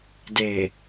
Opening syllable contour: low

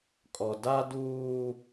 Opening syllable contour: low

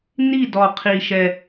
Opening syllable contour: falling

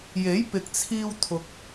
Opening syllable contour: rising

